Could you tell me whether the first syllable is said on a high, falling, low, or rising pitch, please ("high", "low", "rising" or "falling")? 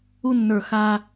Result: high